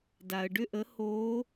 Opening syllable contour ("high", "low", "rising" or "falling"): low